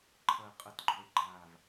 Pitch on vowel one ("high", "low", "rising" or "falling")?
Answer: low